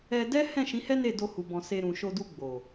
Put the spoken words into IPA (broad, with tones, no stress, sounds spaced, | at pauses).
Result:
ɛ˧ d ɛ˦ h ɛ̃˦˨ ʃ ĩ˨˦ h ɛ˦ n e˦˨ d o˧ h u˨ b ɔ̃˨ s e˧ ɾ ũ˨ ʃ o˧ d u˧ ɡ͡b o˨